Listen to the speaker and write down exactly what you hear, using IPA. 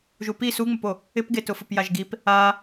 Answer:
ʒ u p i s u ŋ͡m ə p o | ɪ p ɡ e t ʊ f ʊ p j a ʒ ɡ i p | a

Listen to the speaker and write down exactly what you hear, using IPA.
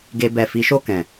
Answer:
ɡ e˧ b ɛ˨ f i˨˦ ʃ o˦˨ k ɛ̃˨

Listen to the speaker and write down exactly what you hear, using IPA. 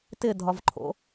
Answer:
t ɪ dʱ ɒ v ǃʰ o̰

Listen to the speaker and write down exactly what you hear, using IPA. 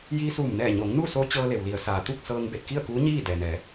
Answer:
j iː˧ s uː˧˩ m n ɛː˧˩ ɲ o˩˧ ŋ n u˥˨ s o˧˥ t͡ɕ ɤː˧ l e˩ w l i˩˧ ə̯ s aː˩ t̪ u˥˨ k̚ s ɤː˧ ŋ b e˧˩ t̚ k i˥˨ ə̯ k uː˧˥ ɲ iː˥˨ d ɛː˩ n ɛː˩˧

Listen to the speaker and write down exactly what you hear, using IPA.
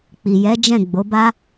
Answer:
k͡p i˨ j ɛ˨˦ d͡ʒ ɛ̃˦˨ ɡ͡b o˨˦ b a˦

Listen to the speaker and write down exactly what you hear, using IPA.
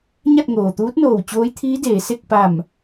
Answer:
ɲ a˥˨ t̚ ŋ oː˩ t̪ uː˧˥ t̚ n oː˧˩ w t͡ɕ oː˧˥ j t̪ʰ iː˧˥ d eː˩˧ s e˥˨ k̚ p a˧˩ m

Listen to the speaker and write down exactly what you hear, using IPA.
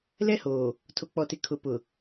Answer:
l ɛ˦ h oː˨ | tʰ o˨ k͡p ɔ˨ t ɪ˨ kʰ ʊ˨ p ʊ˨

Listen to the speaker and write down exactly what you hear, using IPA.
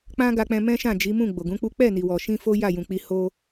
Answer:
k͡p ã˦ ɡ a˧ k͡p ɛ̃˧ m ɛ̃˦ ʃ ã˦˨ d͡ʒ i˨˦ m ũ˦˨ ɡ͡b o˨ ɡ ũ˨˦ k͡p u˦ k͡p ɛ˦˨ n i˨ w ɔ˨ ʃ ĩ˧ f o˦ j a˦˨ j ũ˨ k͡p i˧ h o˧

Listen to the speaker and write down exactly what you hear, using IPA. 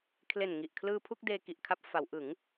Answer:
kʰ l e˨˩ n ŋ i˨˩ ʔ kʰ l ɯː˧ pʰ u˥˩ k̚ d eː˧ k i˨˩ ʔ kʰ a˦˥ p̚ f a˩˦ w ʔ ɯ˩˦ ŋ

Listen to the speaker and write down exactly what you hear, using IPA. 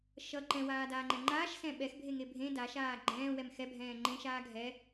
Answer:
ʃ ʌ ǃ ɛ̃ w aː d aː ŋ͡ǃ ɛ̃ ŋ͡ǃ aː ʃ s ɛ̃ ɓ ɛ x bʱ e ŋ e bʱ ẽ d a ʃ aː ɡ͡ǃ ɛ̃ː w ɛ m x ɛ bʱ ɛ̃ː ŋ͡ǃ ẽ ʃ aː ɡʱ ɛ

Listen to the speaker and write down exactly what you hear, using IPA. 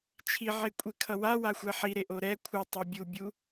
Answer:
t͡ʃʰ i ʕ e kʷʼ e kʰ ʌ w a w a xʷ ɛ ħ i ɾ e ʔ o ɾ ɛ kʷʰ ɯ tˤ o bʲ u bʲ u

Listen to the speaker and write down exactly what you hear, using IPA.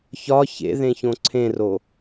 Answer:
ç ɒ ç ḛ ð ẽ ç õ ǀʰ ẽ r o

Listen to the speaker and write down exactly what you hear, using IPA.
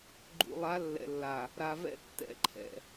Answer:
ɡ͡ǃ ṵ˨ lˠ a˨˦ lː ɛ̰˨ lː a˨ | ɾ a˨ v ɛ̰˦ tː ɛ̰˨˦ ǃʰ ɛ̰˨

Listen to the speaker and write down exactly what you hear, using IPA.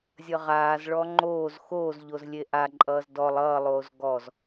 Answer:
zʲ ʌ ʁ aː z ɭ ɔ ŋ͡ǃ oː z x oː z ʎ o z lʲ e ʔ a ǃʼ ʌː z d ɔ lˠ ʌː lˠ oː z ɡ ɔ z

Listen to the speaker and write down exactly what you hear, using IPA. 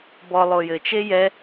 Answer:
b ɔ lˠ o j ɘ t͡ʃ e j ɛ

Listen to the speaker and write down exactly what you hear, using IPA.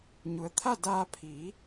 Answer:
ɲ u˩˧ ə̯ t̪ʰ a˥˨ d aː˧ pʰ iː˩˧

